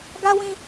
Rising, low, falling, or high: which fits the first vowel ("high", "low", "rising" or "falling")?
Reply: high